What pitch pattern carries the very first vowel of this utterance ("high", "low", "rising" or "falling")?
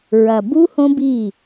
low